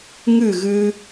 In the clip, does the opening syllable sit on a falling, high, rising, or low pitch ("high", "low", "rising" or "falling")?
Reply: falling